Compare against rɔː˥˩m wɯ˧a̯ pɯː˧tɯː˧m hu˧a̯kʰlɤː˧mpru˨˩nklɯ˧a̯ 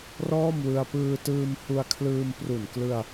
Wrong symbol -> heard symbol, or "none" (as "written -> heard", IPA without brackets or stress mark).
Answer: ɤː˧ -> ɯː˧